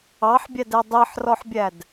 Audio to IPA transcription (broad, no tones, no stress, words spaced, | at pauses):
ɑħbʲædɛ dˤiħrɔħbʲæd